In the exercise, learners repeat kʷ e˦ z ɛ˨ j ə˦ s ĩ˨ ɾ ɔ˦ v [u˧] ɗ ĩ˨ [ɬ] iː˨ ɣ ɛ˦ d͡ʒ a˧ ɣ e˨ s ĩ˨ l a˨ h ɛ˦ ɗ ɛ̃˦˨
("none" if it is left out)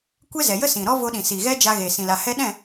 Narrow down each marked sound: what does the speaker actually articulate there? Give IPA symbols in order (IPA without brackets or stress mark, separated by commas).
o˧, s